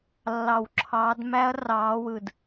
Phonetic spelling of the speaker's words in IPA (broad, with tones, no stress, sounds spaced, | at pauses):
lː ɑ˨˩˦ w ǁʰ ɑː˨˦ d m æ˦˥ ɐ̯ r ɑː˨˦ w ɯ˨˩ d